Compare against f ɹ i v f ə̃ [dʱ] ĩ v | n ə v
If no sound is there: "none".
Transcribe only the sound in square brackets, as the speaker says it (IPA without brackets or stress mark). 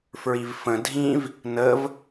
dʱ